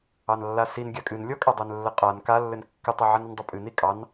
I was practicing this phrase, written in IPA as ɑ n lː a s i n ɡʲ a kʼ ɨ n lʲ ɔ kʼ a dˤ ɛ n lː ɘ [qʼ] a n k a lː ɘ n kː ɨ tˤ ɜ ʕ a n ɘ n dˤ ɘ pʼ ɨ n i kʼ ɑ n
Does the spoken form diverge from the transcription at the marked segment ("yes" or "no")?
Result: no